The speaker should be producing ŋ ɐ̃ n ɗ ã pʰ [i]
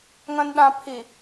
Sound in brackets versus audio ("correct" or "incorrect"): correct